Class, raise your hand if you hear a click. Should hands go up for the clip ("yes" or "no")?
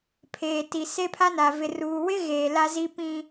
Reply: no